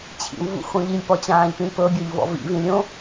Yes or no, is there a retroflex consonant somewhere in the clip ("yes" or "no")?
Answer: no